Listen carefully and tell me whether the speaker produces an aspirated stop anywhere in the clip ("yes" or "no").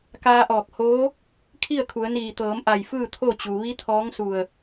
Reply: yes